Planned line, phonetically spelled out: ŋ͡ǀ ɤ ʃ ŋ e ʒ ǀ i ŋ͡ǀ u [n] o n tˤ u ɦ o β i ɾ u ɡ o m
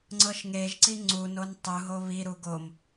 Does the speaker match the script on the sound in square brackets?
yes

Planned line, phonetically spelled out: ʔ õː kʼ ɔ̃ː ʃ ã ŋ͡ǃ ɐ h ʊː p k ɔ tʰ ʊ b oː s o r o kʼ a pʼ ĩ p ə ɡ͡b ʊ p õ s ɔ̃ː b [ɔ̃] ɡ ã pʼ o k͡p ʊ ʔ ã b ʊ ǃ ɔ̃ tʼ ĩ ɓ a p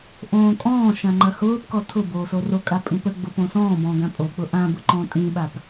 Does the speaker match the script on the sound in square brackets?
yes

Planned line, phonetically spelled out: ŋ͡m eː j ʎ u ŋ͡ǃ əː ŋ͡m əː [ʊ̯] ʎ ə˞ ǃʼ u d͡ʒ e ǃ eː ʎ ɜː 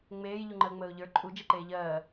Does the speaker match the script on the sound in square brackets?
yes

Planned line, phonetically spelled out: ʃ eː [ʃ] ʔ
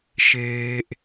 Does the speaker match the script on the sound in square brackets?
no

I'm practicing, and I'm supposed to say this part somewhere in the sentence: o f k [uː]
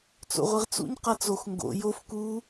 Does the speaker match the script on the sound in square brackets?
yes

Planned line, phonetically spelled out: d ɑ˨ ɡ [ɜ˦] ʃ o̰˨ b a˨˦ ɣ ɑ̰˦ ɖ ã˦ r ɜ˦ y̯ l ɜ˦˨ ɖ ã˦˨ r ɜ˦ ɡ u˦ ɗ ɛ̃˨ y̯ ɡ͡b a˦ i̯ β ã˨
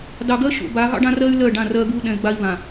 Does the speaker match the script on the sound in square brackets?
yes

